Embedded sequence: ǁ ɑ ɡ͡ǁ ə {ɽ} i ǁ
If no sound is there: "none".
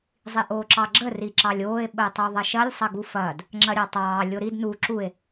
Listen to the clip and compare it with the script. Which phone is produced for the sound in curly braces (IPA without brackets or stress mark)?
r